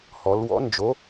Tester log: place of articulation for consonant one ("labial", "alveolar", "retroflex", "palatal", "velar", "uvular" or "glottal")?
glottal